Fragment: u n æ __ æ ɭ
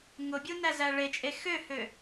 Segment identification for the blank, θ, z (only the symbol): z